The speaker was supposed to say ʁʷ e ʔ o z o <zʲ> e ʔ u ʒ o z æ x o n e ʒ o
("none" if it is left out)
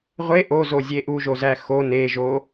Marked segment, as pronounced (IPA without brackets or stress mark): zʲ